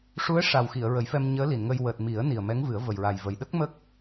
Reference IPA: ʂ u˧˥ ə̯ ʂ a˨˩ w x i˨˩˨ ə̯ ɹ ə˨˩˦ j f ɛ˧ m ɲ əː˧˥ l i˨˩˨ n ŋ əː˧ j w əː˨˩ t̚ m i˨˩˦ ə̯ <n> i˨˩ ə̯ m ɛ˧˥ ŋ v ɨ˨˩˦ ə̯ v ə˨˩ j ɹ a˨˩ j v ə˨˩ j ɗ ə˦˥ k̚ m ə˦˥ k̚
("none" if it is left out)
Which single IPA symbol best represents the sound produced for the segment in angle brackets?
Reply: n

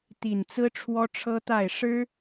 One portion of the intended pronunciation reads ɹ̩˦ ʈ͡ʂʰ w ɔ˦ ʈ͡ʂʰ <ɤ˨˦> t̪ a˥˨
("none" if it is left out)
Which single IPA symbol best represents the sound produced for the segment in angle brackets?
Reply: ɤ˦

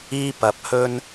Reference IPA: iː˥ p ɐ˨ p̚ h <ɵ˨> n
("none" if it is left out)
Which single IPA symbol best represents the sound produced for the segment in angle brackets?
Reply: ɵ˥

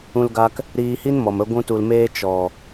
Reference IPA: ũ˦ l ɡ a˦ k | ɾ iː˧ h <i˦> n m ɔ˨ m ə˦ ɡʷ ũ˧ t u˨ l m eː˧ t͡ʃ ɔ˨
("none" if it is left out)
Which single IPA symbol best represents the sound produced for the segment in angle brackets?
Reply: i˦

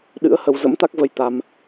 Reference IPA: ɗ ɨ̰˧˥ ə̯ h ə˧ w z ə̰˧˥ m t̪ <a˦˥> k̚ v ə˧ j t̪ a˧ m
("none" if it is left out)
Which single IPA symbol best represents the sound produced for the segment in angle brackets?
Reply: a˦˥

